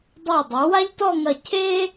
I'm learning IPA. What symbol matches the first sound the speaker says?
dˤ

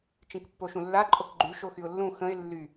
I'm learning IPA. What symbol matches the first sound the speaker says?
t͡ʃ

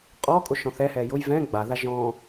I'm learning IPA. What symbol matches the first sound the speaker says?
qʼ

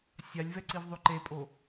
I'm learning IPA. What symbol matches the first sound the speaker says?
sʲ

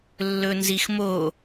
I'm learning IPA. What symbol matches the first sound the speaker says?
lː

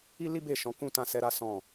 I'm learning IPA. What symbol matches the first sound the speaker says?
i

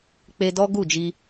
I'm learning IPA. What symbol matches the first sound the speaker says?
k͡p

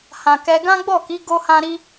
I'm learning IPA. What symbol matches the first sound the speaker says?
h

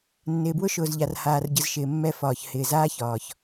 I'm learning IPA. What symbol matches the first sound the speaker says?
nː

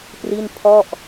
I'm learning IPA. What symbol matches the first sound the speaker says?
p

